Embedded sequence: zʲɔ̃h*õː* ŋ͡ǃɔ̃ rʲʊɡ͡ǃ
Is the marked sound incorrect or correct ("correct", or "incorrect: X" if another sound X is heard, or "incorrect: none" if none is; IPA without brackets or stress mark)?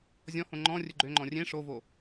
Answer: incorrect: õ